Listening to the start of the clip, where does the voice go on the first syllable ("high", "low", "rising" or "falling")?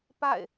falling